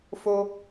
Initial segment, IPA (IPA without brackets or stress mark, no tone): f